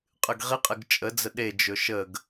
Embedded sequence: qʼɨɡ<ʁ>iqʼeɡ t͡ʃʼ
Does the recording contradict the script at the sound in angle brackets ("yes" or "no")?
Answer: no